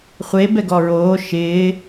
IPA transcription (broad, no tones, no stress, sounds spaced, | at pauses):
χʷ e b ɛ ɡ ɔ ɹ oː ʃ ɪː